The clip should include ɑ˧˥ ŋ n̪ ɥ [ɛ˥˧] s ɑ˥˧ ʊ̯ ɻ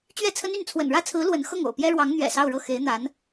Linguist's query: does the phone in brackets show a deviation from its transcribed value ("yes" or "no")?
yes